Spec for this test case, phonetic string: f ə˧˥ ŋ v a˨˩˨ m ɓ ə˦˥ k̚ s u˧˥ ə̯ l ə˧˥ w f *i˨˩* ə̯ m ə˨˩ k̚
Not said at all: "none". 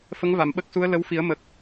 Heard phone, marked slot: i˨˩˦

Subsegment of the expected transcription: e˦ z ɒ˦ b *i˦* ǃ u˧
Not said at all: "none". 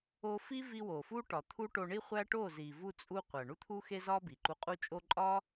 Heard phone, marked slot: i˨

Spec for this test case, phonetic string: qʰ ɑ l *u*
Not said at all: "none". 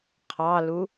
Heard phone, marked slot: u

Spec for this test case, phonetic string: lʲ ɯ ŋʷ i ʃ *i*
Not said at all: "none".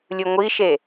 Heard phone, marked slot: e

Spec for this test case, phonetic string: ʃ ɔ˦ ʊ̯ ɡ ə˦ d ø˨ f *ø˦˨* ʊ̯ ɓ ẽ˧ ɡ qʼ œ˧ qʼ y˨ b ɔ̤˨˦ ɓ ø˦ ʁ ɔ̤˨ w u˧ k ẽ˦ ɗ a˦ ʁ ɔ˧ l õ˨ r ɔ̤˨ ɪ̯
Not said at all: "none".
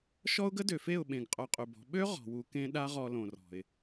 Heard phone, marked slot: e˦˨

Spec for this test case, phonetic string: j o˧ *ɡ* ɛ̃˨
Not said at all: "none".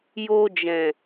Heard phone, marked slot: d͡ʒ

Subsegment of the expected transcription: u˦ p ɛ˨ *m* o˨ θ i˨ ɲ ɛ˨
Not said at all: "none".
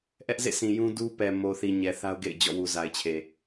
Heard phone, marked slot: m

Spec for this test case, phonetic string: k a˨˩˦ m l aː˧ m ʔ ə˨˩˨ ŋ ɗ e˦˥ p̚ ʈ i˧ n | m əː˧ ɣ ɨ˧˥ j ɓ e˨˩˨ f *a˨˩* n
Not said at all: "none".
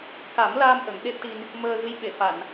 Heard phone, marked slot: a˨˩˨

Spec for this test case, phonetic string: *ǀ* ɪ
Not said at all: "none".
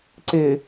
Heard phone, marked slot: ǀ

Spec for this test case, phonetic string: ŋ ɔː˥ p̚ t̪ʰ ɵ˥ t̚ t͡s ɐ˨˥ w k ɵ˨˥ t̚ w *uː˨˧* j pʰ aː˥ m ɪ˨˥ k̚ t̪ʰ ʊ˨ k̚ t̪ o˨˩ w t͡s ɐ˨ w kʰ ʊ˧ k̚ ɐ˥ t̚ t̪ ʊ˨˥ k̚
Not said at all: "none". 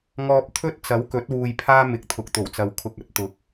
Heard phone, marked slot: uː˧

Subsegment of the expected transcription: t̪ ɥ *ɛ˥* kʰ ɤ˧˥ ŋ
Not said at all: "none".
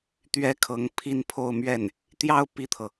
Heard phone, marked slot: ɛ˥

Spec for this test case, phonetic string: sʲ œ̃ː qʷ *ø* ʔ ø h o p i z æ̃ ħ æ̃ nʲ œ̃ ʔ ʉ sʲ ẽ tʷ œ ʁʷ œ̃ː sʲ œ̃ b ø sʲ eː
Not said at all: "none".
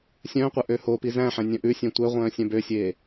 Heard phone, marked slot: œ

